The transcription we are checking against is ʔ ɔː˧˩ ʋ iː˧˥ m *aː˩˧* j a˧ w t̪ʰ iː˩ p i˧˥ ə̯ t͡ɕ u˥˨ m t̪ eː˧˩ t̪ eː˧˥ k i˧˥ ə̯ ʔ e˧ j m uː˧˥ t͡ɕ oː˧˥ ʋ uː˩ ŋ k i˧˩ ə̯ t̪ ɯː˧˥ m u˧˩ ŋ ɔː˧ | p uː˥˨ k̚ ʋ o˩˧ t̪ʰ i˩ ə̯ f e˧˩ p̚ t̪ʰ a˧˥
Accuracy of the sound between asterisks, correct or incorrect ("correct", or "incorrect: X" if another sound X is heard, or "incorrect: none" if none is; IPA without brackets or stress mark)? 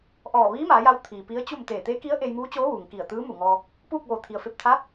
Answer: correct